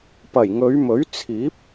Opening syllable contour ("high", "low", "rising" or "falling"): low